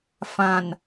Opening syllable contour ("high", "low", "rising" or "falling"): low